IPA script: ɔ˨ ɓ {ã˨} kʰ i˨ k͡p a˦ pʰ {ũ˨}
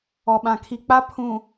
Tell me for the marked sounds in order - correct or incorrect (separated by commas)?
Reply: correct, correct